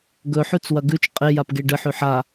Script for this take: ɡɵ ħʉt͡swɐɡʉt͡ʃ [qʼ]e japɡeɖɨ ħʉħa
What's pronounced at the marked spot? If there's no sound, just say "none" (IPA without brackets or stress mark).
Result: qʼ